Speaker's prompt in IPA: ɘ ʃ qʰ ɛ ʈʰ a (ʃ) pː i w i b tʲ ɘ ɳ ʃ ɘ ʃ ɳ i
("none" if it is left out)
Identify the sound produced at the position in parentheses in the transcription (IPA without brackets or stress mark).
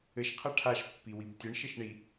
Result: ʃ